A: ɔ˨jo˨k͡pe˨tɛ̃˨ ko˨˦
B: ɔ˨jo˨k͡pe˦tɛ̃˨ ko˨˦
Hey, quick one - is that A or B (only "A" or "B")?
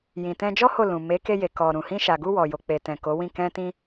A